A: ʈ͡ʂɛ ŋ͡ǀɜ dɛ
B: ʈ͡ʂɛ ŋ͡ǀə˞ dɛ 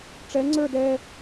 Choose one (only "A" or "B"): B